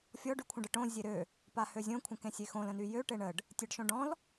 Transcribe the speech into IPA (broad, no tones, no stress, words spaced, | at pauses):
fʲɔɖ ykʷʰə̃ɖəʈõ zʲeɾø | pahøzʲõ kʷʰə̃kẽsʲexõl ə̃nyjø ʈeɳəɖ | tʲeɖʃõɖɔ̃l